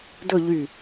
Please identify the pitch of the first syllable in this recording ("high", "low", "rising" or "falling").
falling